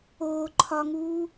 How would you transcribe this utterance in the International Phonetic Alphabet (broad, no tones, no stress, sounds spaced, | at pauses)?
oː ǃʰ ɒ ŋ uː